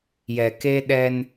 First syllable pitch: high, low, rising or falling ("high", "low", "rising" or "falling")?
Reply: low